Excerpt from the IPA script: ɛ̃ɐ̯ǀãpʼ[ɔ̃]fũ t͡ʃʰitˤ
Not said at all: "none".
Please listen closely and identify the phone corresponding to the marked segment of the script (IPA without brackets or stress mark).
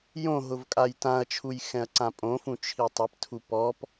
õ